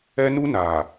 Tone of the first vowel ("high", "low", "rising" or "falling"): high